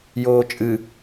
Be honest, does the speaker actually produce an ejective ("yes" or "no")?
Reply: yes